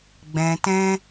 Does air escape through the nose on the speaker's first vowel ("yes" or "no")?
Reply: yes